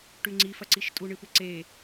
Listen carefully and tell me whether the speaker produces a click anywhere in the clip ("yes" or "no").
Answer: yes